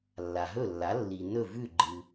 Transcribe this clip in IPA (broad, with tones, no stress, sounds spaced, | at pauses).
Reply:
lː a˩ ɦ ɵ˥˩ lː a˩˥ lː i˩ n ɵ˥˩ v ʉ˥˩ ɡ͡ǃ ɨ˩